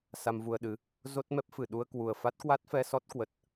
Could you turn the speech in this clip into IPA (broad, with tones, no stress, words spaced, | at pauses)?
sa˧mvu˧ə̯ɗɨ˨˦ | zo˦˥t̚mɛ˦˥p̚fɨ˧˩ ɗu˧ə̯kwu˨˩ə̯ fa˦˥t̚kwa˦˥t̚fɛ˧sɔ˦˥t̚ kwə˨˩t̚